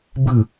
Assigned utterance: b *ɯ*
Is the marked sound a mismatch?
no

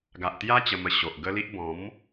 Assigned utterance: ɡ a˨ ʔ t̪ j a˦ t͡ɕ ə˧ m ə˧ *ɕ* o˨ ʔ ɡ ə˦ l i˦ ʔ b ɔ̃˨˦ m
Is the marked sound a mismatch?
no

